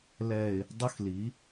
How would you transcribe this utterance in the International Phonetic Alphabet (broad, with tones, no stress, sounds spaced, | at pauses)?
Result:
l ɛ˨ ɪ̯ | dˤ ə˦ x l i˨˦